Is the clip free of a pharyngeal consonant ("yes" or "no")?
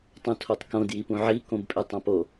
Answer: no